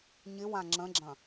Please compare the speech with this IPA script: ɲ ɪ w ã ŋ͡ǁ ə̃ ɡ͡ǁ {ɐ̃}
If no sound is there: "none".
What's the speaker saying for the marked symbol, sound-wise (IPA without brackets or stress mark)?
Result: ɐ̃